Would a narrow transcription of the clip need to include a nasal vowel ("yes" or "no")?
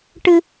no